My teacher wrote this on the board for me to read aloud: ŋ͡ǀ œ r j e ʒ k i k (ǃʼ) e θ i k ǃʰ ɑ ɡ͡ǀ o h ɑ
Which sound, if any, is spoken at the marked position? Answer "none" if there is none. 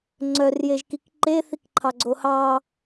ǃ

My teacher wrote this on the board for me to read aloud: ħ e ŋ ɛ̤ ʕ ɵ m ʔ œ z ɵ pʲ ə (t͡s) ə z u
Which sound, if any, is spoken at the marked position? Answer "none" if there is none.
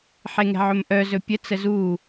t͡s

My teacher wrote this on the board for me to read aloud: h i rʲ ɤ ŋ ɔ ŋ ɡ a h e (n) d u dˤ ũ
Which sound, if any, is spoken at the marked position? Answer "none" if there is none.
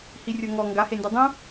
n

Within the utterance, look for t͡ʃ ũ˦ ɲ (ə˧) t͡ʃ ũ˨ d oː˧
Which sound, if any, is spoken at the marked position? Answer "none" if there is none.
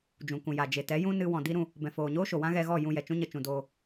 ə˧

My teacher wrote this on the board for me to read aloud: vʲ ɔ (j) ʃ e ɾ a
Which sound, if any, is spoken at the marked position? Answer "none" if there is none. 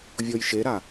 j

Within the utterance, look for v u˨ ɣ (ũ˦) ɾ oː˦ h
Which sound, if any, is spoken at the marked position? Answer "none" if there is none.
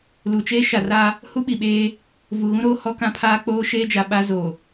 ũ˦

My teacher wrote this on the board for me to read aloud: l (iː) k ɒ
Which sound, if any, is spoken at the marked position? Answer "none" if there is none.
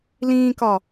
ĩː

